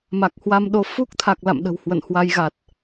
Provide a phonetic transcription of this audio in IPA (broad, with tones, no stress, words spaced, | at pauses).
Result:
ma˨˩k̚hwa˧mɗo˨˦ fu˦˥k̚t̪ʰa˨˩k̚ la̰˧˨mɗə̤˨˩whwə̰˧˨nhwa˧j ɣa˨˩t̚